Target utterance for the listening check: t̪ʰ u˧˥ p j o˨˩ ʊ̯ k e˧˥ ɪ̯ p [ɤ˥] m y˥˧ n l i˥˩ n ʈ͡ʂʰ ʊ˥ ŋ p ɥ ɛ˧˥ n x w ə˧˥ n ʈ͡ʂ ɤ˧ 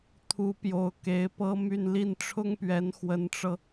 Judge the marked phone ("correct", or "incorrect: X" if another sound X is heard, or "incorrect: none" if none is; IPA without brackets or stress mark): correct